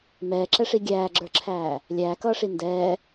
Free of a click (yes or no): no